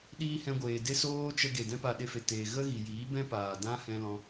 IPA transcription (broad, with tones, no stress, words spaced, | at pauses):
ɗiː˧ hɛ̃˧ɡʷeː˨de˦ soː˦t͡ʃə˧ ɡe˨dɛ̃˦ pa˧ɗe˧fe˨teː˨ ɣə˦ɣi˨jiː˨˦ bɛ̃˦paː˨dã˦ hɛ̃˦lɔ̃˦